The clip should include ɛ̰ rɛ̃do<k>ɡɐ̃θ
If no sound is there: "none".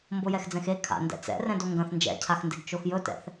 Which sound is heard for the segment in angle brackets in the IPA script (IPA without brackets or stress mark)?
ŋ